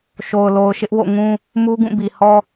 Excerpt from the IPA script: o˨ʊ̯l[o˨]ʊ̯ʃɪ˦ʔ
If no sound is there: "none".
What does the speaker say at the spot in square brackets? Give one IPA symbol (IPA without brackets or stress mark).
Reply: o˨